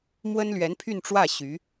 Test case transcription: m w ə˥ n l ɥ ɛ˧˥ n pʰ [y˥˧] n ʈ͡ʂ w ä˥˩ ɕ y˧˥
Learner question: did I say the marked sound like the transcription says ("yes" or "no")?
yes